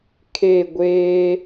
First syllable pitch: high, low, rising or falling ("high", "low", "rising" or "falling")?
falling